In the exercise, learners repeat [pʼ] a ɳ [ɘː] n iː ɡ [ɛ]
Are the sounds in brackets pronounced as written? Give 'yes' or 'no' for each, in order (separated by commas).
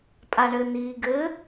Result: yes, yes, no